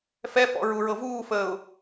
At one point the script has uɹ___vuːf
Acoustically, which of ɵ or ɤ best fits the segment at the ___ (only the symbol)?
ɤ